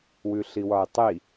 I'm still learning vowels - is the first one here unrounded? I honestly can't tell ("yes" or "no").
no